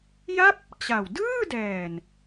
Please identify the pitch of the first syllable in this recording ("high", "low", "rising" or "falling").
falling